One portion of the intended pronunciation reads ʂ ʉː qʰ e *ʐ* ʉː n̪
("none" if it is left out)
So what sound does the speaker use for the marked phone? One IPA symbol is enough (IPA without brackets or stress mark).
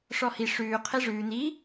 ʐ